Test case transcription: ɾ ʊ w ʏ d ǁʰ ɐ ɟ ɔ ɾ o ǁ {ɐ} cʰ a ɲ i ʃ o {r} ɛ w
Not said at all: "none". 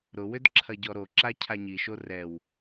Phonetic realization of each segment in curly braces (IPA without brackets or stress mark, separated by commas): a, r